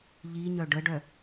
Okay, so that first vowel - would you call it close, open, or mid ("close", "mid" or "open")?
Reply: close